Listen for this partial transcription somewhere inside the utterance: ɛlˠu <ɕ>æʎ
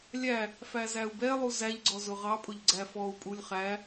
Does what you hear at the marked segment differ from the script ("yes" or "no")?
yes